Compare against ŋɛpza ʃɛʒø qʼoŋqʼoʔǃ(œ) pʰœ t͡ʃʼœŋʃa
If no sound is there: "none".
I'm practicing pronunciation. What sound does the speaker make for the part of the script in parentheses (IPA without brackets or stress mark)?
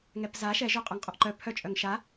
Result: œ